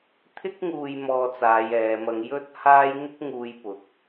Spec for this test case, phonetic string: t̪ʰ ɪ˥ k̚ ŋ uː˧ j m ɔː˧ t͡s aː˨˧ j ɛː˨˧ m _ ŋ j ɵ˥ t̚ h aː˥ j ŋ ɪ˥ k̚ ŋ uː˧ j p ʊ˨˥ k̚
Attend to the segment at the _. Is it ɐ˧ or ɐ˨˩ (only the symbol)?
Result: ɐ˧